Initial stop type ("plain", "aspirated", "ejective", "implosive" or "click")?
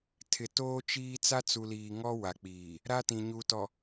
aspirated